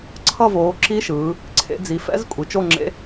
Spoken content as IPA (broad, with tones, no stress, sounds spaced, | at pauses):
ǀʰ ʌ˦˨ v oː˩˧ ǁ i˧˥ ʃ ɯː˩˧ | ǀʰ ḛ˩˧ d͡z i˩˧ f ɛ̰˧˥ z kʷʼ i˩˧ t͡ʃ o˦˨ ŋ͡ǁ ḛ˧˥